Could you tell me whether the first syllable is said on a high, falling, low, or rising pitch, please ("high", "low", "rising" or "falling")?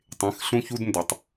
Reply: rising